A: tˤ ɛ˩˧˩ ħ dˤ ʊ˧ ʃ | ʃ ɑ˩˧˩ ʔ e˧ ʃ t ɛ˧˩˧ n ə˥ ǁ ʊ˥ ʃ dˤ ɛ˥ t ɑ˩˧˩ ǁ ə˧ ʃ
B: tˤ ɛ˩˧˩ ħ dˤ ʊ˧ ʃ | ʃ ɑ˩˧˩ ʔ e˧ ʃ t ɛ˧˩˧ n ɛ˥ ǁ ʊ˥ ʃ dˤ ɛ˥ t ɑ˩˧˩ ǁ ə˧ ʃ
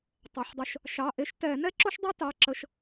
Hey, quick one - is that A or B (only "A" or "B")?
B